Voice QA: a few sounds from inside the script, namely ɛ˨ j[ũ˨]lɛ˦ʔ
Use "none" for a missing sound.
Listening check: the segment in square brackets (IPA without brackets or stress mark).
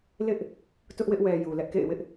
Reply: u˨